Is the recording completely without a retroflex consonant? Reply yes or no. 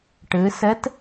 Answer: no